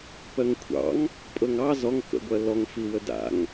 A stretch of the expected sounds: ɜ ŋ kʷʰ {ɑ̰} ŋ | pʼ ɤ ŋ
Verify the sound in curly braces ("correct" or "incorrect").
correct